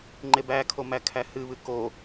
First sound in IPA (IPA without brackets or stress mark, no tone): ŋ͡ǃ